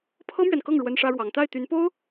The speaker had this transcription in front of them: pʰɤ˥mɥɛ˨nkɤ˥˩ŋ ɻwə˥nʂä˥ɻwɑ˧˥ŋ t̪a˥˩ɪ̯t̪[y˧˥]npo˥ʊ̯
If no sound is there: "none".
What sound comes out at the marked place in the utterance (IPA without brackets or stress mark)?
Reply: y˧˥